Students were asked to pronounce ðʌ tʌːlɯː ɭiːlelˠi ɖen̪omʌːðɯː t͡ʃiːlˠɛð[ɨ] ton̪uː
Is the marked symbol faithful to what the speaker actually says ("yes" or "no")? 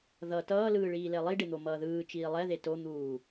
no